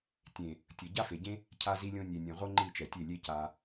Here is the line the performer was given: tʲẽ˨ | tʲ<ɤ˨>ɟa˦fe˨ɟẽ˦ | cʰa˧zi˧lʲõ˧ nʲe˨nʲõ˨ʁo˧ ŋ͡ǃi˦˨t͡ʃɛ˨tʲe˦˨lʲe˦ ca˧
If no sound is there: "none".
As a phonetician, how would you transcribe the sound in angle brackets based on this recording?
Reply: ɤ˨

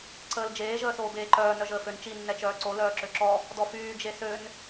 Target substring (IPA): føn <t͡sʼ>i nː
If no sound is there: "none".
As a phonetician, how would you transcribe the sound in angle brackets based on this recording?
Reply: t͡ʃ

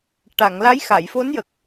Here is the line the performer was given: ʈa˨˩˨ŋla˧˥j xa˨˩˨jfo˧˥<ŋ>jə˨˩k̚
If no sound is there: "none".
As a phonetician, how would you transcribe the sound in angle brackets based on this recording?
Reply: n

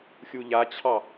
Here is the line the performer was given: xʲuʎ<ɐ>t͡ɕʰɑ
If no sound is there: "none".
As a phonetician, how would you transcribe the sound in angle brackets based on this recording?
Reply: a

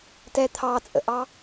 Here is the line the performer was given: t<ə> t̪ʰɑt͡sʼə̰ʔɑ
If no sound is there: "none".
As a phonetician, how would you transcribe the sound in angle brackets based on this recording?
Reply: ɛ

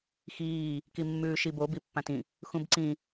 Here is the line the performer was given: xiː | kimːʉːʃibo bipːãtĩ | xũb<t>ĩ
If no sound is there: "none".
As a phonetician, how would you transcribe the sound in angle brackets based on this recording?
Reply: ǀ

